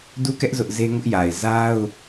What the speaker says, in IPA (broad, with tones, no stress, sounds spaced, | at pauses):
d u˦ k ɛ˦ ʔ z ʊ˦ ʔ z e˦ ŋ ʊ˦ ʔ j a˨ ɪ̯ z a˦ ʊ̯